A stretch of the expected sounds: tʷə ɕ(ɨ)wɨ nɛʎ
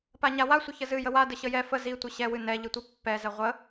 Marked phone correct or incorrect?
incorrect